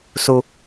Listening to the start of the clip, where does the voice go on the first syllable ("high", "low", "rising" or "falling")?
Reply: low